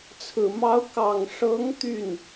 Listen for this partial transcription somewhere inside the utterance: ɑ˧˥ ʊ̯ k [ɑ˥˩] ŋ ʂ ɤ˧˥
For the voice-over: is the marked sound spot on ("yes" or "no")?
no